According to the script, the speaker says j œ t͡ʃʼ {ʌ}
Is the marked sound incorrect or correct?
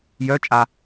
incorrect